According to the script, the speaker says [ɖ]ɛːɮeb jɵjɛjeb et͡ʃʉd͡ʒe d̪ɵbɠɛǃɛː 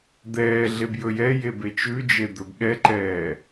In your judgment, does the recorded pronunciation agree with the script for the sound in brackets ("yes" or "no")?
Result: no